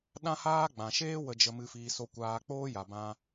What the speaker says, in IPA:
ɗã˦haː˦ ɡ͡bã˨ʃeː˦ wə˧d͡ʒə˧ mɨ˧fiː˧ so˦ kʷaː˧k͡poː˦ ja˨bã˧

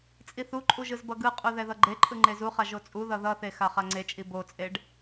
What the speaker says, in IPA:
t͡sʼiθuǃʼu ʒɯzbʌɡɯqʼu ðɛðʌɡ͡ǃeǃʼɯ ŋ͡ǃezuχa ʒot͡sʼuðʌ ðʌθe xaχaŋ͡ǀet͡ʃʼi bot͡sʼeɖ

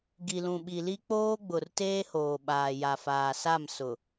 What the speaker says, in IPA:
ɡi˨lũ˨ɓi˨li˦ k͡poː˦ɡ͡bʊ˨r teː˦hoː˨ ɓaː˨ ja˨faː˨sa˦˨m sʊ˨

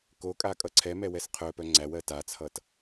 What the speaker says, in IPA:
kokʼa kʼʌǀʰɛmɛ wɛsqʰœpœ ŋ͡ǀæwɜ tat͡sʰʌt

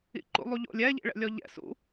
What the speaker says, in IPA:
ḭǃṵlˠuʎo̰lʲ ɛʎḭɭɛ̰ lʲɔʎɛ̰ sṵ

